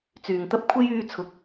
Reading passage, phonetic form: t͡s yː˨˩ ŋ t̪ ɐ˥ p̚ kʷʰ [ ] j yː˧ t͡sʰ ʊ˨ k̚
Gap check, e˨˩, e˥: e˥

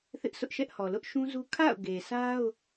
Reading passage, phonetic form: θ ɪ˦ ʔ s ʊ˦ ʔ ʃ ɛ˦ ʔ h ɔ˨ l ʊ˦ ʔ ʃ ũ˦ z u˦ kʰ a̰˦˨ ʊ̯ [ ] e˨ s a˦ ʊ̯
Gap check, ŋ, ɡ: ɡ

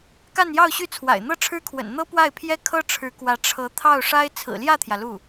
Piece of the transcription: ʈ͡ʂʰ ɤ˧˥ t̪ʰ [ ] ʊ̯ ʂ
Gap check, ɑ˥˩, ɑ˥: ɑ˥˩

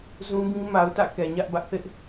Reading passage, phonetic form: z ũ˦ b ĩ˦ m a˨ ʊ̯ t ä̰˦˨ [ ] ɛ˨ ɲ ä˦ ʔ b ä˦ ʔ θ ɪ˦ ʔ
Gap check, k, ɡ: k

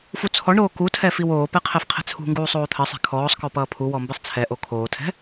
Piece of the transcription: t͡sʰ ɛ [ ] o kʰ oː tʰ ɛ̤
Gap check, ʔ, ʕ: ʔ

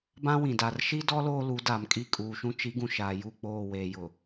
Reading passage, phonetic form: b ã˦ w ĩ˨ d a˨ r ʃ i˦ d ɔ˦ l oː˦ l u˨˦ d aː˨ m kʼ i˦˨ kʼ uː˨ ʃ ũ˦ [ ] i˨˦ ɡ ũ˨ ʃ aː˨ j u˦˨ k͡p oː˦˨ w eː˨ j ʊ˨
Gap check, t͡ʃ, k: t͡ʃ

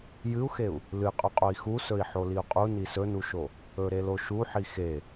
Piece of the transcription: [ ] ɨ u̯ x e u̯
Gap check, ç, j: j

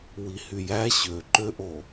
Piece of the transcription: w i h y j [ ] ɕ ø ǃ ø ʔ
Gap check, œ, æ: æ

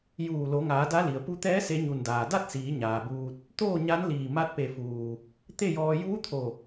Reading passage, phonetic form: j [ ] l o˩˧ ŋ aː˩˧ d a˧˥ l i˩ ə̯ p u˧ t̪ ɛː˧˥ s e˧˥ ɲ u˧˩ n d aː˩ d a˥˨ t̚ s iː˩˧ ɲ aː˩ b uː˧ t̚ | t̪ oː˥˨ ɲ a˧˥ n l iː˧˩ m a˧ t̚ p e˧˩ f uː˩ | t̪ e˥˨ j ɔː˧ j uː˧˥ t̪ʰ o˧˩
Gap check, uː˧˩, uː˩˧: uː˧˩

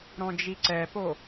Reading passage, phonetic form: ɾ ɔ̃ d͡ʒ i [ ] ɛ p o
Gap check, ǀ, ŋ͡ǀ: ǀ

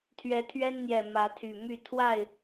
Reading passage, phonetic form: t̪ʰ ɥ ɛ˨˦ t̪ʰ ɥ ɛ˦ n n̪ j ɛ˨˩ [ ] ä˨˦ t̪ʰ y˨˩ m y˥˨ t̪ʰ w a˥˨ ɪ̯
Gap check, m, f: m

